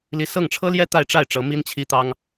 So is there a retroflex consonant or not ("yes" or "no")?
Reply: yes